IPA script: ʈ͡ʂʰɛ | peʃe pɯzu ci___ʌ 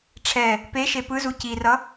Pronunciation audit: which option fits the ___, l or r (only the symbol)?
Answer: r